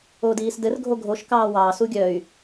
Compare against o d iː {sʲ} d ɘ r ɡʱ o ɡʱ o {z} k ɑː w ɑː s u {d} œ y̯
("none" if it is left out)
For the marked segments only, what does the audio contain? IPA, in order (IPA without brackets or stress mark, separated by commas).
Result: s, ʃ, ɡʲ